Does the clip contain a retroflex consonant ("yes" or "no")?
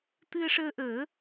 yes